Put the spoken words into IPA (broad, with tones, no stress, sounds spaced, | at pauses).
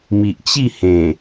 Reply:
m i˨ ʔ t͡ɕ i˥˧ h ẽ˨˩